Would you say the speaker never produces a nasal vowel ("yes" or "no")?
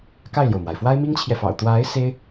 yes